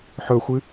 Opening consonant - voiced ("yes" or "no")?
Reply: no